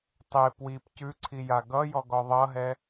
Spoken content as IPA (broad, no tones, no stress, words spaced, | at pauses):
tˤe pwip cʉǀʰija ɡʌjɔɡɔ ðˤʌɦɛ